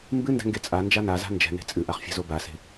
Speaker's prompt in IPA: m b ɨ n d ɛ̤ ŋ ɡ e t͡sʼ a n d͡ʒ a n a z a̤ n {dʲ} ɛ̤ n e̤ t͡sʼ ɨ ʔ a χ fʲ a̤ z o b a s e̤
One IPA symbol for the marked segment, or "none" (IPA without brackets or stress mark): d͡ʒ